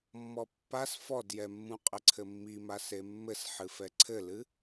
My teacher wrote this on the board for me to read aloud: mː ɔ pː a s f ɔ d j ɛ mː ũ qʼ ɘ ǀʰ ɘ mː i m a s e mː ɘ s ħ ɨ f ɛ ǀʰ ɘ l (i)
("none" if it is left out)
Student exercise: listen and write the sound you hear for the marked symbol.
ɨ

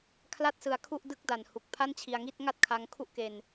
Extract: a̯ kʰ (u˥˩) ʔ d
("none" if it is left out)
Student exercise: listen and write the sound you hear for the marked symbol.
u˥˩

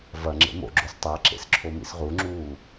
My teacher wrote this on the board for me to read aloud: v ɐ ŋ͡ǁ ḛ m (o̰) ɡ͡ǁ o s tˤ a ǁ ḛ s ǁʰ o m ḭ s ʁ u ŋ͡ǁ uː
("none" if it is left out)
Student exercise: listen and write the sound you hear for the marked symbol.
o̰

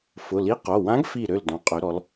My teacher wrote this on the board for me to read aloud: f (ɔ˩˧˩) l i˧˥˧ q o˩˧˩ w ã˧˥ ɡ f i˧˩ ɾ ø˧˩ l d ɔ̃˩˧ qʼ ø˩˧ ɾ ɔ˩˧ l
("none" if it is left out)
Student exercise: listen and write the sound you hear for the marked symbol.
ʊ˩˧˩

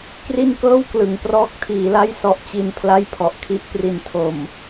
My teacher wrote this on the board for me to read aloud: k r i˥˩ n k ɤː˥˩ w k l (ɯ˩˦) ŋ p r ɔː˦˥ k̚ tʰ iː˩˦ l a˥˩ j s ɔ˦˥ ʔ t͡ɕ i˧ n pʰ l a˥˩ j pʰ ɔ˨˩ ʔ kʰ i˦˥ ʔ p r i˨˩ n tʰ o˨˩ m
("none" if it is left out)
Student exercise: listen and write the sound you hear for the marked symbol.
ɯ˩˦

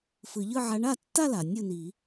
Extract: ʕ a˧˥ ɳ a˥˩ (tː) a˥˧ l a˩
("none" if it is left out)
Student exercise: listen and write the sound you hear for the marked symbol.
tː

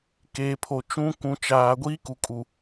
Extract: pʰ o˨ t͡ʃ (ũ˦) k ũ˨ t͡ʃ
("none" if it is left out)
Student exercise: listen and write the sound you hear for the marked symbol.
ũ˦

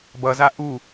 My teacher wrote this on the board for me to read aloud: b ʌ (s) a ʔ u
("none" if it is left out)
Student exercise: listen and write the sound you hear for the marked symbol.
z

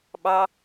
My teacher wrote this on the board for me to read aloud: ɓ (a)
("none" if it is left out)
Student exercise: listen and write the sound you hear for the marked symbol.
ɑ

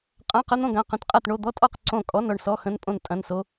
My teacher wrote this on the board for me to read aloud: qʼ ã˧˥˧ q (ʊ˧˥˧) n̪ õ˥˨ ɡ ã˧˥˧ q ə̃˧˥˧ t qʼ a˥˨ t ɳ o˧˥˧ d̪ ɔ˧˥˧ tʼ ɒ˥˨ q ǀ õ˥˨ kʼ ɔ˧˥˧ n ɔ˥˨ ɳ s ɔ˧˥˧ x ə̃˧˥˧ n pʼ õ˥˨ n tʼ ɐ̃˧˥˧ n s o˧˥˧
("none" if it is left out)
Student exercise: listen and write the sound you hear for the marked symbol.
ə˧˥˧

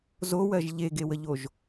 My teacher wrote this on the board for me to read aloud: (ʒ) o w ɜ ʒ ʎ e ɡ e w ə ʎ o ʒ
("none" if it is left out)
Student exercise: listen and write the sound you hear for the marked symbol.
z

